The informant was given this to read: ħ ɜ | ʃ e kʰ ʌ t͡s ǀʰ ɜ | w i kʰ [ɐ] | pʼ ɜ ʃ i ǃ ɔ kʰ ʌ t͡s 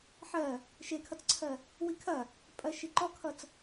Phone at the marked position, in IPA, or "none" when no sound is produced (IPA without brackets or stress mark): ɐ